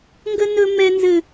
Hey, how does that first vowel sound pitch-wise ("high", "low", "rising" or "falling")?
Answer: high